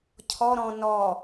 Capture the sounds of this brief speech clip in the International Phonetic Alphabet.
cʰɔ ɾɔ̃ nɔ

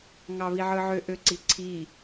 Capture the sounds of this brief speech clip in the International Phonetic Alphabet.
ŋɑβiʕɯʕø ʔøǀiǀʰi

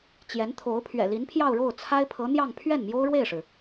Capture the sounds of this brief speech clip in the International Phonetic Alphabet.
t͡ɕjɛ˧˥nt̪ʰo˧˥ʊ̯ pʰɥɛ̰˨˩li˧˥npʰjɑ˥˧ʊ̯ɻo˥˩ʊ̯ t͡sʰa˥ɪ̯pʰɤ˧˥n̪jɑ˥˧ŋ pʰɥɛ˥˩nmjo˥ʊ̯ɻwe˥˩ɪ̯ʂɻ̩˩

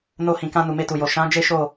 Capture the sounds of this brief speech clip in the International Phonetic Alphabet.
no˧hĩ˨kã˧ nu˨me˧tu˨jo˨ ʃã˨˦ d͡ʒe˦ʃo˦˨

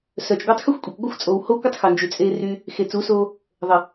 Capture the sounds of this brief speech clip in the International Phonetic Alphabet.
sœ˨t͡ʃɡʷœ˧tˤ xə˦˨xʷkʷʼe˨kʷɡʷə˦˨xʷt͡sʼo˨w ho˦kʷə˦tˤxœ˨nd͡ʒy˨ t͡sʼe˧ ry˧ | xe˨t͡su˨˦so˧ | ðˤə˨

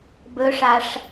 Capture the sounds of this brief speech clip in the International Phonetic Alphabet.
bɵʂaʂ

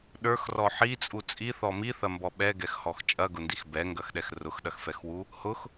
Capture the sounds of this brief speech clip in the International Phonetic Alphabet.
ɗə˞xrɔ ħit͡sʼu t͡sʼiθɔ miθɐmbɔ ɓɛɡɛxhɔx t͡ʃʼɐɡʊndix bɛŋɡɐxɗɛx rʊxɗɐxfɛxwu | hʊx

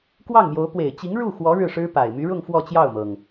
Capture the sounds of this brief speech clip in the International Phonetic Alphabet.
kwɑ˥˩ŋmjo˧˥ʊ̯ pwe˨˩ɪ̯t͡ɕi˧˥ŋ ɻu˥˩xwɔ˧˥ ɻɻ̩˥˩ʂɻ̩˥pa˨˩ɪ̯ my˧˥ɻʊ˥˧ŋ fwɔ˥˧t͡ɕjɑ˥˩ʊ̯mɤ˩ŋ

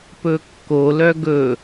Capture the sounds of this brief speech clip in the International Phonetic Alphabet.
pɵkːo lœɡɵ

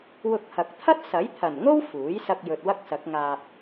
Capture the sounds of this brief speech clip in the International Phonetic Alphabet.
wʊ˧k̚hɐ˨k̚ t̪ʰɐ˥t̚ sɐ˨˥jt̪ʰɐ˨˩nŋo˥w fuː˨˥jsɐ˧k̚ jɵ˨t̚wɐ˥k̚sɐ˨˥k̚ŋaː˧p̚

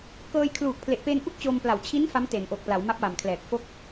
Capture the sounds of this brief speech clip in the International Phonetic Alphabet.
kɤː˧jkʰluː˨˩k̚pʰle˨˩ʔ pe˧n ʔu˥˩k̚t͡ɕo˧mpla˨˩w t͡ɕʰi˦˥n fa˦˥mte˩˦nʔo˨˩k̚ pla˩˦wma˦˥p̚wa˨˩mkʰlɛː˨˩k̚ fo˥˩k̚

